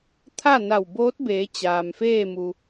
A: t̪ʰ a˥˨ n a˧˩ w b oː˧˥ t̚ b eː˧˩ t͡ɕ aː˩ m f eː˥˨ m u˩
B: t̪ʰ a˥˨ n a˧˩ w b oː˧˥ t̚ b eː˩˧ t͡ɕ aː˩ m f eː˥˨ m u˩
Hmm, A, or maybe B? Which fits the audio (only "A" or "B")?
B